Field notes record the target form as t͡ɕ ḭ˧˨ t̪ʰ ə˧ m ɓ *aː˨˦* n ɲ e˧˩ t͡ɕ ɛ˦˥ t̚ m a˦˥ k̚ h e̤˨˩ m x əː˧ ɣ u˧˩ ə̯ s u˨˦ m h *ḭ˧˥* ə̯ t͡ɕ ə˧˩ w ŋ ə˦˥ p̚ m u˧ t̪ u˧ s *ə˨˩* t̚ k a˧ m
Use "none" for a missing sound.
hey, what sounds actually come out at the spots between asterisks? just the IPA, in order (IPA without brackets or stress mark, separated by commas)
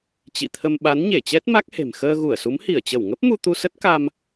a˨˦, i˧˩, ə˦˥